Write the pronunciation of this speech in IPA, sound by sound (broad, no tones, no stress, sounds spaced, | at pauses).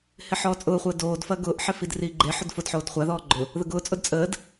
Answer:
h ɪ ħ ɔː t͡sʼ ʊː χʷ əː d oː d f ɐ ɡ ʊː ʔ ħ ɪ f i d r iː ɡ͡ǃ e ħ ʊ d f ʊ d ħ oː d χʷ a ð ɔː ɡ͡ǃ ʊ | ð ə ɡ ʊː t͡sʼ ʊ d t͡sʼ əː d